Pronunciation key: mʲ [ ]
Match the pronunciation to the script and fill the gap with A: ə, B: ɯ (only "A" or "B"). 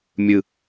B